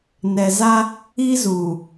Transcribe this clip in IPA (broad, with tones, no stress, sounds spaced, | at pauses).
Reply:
n ɛ˨ z a˦ | i˦ z uː˨